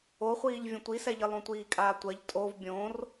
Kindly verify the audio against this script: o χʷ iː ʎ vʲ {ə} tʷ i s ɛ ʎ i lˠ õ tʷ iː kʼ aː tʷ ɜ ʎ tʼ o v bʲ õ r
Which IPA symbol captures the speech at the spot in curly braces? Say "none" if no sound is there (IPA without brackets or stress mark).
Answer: ə̃